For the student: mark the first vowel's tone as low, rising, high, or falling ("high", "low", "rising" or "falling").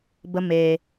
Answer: high